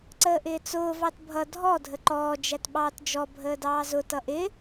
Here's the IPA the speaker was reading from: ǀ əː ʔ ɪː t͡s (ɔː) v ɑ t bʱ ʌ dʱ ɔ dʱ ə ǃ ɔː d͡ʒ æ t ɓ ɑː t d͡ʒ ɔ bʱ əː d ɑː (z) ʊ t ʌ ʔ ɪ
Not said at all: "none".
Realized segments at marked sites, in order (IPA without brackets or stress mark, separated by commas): ʊː, z